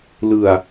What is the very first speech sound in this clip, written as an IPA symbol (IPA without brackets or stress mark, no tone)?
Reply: l